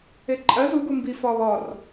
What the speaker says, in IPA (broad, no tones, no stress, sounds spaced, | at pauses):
e ǃʼ ɜ z u ɡ u m b i f ɒ β ɒ r